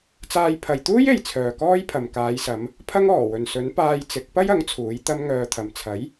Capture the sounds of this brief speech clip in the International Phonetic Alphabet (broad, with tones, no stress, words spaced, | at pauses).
t͡saː˧j pʰɐ˨jt̪uː˥je˨j t͡sʰœː˨kɔː˥jpʰɐ˨m kaː˨˧jsɐ˨˧m | pʰɐ˥ŋɔː˨˩wɵ˨nsɵ˨˥n paː˧jt͡sɪ˨˥k̚pɐ˥jɐ˨˥ŋ t͡sʰuː˨˥jt̪ɐ˥m ŋœː˧t̪ʰɐ˨m t͡sʰɐ˨˥j